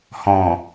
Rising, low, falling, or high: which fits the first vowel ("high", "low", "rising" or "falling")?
low